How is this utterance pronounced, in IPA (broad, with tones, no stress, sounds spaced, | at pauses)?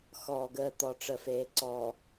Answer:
x ɔː˨ ɡ əː˦˨ t̪ ɔ˨ ʈ͡ʂ ə˨ f eː˨ ǀ ɔː˨